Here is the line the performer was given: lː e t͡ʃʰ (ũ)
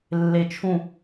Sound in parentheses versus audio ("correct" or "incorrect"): correct